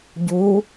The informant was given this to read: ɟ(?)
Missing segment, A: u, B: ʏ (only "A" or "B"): A